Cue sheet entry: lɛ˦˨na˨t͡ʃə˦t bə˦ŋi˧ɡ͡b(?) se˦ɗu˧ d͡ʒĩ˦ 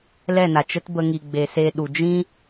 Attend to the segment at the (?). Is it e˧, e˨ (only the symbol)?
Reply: e˧